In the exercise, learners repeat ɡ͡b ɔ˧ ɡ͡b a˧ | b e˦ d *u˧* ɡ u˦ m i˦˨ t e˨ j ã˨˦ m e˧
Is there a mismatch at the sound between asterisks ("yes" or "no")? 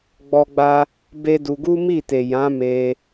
no